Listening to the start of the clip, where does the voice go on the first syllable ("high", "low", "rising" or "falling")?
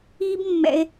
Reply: high